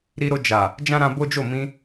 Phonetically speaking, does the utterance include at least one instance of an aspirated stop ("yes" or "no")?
no